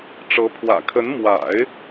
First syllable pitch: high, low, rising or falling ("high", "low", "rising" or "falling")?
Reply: rising